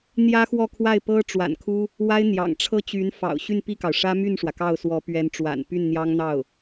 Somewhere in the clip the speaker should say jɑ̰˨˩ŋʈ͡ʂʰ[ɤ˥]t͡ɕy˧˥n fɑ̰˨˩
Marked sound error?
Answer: no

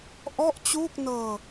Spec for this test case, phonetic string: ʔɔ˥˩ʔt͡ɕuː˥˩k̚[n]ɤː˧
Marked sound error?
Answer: no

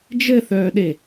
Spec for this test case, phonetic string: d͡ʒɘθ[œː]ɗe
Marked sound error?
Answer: no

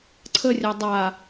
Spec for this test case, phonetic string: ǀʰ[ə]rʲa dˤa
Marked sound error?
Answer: no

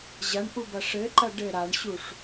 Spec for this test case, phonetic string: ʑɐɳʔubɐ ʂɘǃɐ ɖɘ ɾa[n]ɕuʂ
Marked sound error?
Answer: yes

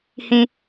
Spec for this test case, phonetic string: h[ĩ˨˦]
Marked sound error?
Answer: yes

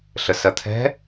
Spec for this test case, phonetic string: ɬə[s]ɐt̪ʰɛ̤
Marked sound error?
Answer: no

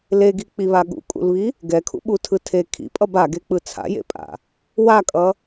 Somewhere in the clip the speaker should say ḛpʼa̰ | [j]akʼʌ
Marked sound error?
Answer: yes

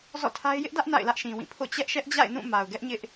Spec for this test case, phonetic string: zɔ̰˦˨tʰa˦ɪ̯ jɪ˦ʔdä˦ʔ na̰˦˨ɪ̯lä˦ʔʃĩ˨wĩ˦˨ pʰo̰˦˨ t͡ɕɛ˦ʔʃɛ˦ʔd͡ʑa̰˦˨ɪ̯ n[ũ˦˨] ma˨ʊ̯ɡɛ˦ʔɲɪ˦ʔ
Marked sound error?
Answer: no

